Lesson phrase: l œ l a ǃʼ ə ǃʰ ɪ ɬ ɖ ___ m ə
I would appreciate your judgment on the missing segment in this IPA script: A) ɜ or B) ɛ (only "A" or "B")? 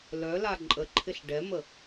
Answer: B